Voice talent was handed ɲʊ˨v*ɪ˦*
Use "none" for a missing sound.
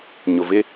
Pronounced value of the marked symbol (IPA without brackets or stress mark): ɪ˦